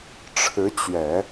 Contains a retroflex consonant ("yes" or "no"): yes